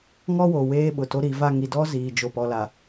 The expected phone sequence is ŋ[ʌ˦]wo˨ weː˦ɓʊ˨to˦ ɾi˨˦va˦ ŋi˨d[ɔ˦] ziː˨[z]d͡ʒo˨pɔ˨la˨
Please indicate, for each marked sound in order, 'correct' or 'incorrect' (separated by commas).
incorrect, correct, incorrect